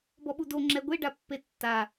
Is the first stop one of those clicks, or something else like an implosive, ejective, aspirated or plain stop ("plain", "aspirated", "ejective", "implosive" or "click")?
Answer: plain